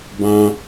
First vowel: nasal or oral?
nasal